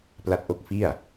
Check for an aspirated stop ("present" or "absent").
absent